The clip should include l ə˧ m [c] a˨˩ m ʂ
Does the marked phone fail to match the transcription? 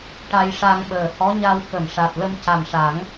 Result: no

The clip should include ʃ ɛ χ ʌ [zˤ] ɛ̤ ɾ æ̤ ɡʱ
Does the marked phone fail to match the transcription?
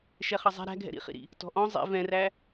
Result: no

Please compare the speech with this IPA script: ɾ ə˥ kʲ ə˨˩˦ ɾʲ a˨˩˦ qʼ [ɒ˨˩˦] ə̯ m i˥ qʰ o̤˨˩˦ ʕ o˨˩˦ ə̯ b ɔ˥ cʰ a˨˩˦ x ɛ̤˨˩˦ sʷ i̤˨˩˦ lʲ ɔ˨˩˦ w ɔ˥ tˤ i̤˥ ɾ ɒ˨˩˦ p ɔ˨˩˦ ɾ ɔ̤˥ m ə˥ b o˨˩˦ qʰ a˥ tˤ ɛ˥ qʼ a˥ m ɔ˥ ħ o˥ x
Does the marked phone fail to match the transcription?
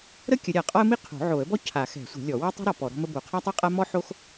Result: yes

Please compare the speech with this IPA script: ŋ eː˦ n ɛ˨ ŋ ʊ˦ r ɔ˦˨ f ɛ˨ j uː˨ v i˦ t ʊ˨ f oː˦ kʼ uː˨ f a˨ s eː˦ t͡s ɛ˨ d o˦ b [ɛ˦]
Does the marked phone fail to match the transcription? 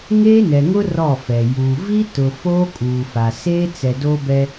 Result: no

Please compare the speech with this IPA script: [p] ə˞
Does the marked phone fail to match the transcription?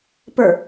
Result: no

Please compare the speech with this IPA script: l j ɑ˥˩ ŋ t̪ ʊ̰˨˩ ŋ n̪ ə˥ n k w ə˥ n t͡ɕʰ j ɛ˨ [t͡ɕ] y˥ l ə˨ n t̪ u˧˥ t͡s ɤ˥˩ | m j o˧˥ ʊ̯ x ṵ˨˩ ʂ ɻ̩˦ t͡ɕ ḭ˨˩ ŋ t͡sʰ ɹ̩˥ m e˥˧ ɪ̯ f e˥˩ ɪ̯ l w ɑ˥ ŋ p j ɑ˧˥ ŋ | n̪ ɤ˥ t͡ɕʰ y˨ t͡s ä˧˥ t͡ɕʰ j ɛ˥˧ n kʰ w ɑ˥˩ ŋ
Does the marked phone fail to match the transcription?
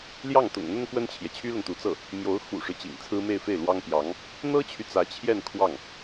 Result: yes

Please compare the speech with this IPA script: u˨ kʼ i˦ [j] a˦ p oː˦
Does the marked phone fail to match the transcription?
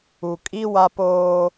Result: yes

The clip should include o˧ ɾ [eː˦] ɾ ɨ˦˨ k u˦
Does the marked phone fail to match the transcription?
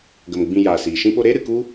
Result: no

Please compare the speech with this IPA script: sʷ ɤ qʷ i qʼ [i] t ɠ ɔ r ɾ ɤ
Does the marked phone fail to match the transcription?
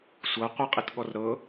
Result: no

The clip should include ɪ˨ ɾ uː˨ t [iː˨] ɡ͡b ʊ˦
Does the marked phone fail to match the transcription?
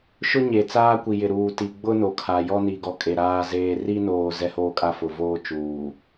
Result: yes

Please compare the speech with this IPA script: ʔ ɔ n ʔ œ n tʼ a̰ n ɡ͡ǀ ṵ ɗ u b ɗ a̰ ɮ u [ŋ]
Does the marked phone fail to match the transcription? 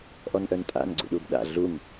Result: no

